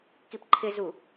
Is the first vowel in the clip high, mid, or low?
high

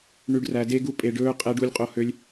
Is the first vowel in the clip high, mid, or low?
high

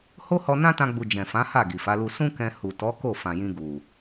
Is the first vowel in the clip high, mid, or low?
mid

